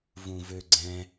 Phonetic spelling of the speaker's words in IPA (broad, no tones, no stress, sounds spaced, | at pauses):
v ũ v ø ɡ͡ǀ ɛ̃